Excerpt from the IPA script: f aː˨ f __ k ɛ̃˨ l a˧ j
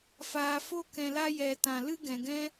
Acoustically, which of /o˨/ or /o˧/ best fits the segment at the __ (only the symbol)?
o˧